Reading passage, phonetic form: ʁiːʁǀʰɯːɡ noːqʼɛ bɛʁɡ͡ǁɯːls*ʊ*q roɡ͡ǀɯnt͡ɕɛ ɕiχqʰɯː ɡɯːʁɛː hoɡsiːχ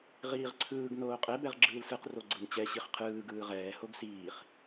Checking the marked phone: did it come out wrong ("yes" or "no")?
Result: yes